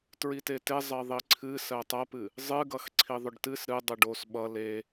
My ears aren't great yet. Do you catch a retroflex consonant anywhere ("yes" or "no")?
yes